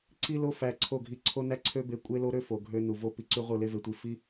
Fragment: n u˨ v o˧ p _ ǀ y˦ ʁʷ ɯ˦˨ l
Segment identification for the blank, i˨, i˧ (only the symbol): i˧